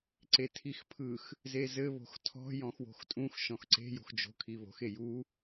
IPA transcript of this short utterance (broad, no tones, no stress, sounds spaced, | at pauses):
ǀ e tʰ i x pʰ ɯ x | z e z ɘ β o̤ x tʰ ɔ̤ j ɔ̃ x w o̤ x tʼ ũ x ʃ ɔ̃ x ǀ e̤ j o̤ x d͡ʒ o̤ kʰ i β o̤ x e j u